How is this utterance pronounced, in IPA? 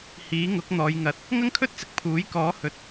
hiː˨˥ŋʊ˨˥k̚ n̪ɔː˨jŋɐ˨t̚ | ŋɐ˥ŋkʰɵ˥t̚t͡sɪ˨˥k̚ pʰuː˨˥jkɔː˨˥hɵ˨˥t̚

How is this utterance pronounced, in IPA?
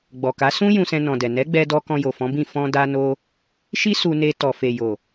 ɡ͡bɔ˨ka˨˦ sũ˦ jũ˧sɛ̃˧ nɔ̃˨dɛ˨ nɛ˨˦ɡ͡bɛ˧dɔ˧ kɔ̃˧jo˨fɔ̃˨˦bĩ˦˨ fɔ̃˧da˧ no˧ | ʃi˦ su˧ne˧ tɔ˨ fe˨jo˨

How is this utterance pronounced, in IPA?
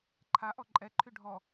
ǃʰaʔɔ ǃʼɛǃʰy ɖʱɔ

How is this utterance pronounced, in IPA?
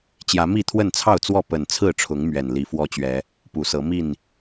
t͡ɕjä˨˦ mi˥˨t̪ʰwə˥˨nt͡sʰɑ˥˨ʊ̯t͡swɔ˥˨ pə˨˩nt͡sʰɹ̩˥˨ʈ͡ʂʰʊ˨˦ŋ mɥɛ˨˩n li˨˦fwɔ˦t͡ɕɥɛ˨˦ | pu˨˦sɤ˨˦ mi˥˨n

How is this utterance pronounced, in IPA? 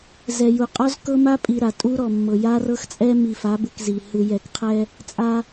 zɛ˨ ju˨qʼɔ˦z kɤ˦ma˦pʼi˨ ɾa˨tʼu˦ɾɔ˨mːɤ˨ ja˦rɤ˦xt͡sʼɛ˦ mi˨fa˨˦bɯ˨k zi˨ hɯ˨jɛ˨kqʰɛ˦ | t͡sʼa˦

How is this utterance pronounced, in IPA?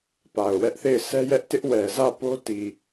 pa˨ʊ̯wɛ˦ʔθe˦˨ɪ̯ sɛ˦jɛ˦ʔtɪ˦ʔwɛ˨ zä˦˨po˦ti˨

